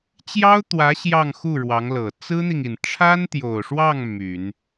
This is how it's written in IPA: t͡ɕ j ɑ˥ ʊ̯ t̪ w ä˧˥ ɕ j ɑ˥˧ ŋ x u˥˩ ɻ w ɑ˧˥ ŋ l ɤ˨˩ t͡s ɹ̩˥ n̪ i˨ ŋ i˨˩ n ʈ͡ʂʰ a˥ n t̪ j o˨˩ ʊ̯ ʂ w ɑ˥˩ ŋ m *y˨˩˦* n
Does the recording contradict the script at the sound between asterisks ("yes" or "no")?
no